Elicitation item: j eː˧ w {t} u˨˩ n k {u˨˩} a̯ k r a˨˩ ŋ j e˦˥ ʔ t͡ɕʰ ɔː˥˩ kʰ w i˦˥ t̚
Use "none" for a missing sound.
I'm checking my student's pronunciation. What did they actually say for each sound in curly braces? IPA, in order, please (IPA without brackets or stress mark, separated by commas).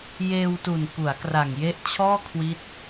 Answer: t, u˩˦